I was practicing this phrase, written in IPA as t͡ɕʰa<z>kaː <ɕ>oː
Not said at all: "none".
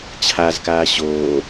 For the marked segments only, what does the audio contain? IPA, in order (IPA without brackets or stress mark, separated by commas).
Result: z, ɕ